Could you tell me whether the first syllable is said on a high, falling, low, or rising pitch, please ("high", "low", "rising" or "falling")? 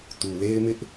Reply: low